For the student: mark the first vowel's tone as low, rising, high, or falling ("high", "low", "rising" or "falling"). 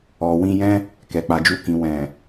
low